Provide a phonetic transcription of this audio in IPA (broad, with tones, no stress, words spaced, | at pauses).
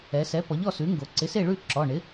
ɛ˩˧sɛ˩˥ pɔ˩˥ʎɔ˥˨sʉ˩˥ŋɡo˩˧ ǀɪ˩˥se˥˨ɭʉ˥˨ ǁɔ˩˧˩ ɳɪ˩˥